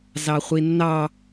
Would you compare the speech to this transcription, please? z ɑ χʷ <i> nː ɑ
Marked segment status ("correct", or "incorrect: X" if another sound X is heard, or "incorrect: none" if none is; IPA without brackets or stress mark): correct